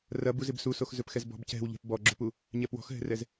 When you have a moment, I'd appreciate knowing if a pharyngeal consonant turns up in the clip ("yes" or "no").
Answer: no